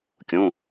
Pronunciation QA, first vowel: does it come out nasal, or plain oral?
nasal